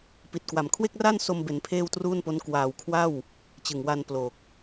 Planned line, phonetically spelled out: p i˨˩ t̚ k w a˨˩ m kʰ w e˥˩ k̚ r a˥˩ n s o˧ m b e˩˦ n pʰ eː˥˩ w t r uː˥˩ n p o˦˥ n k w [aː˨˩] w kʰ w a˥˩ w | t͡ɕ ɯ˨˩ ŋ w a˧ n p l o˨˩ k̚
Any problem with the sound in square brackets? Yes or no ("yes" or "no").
no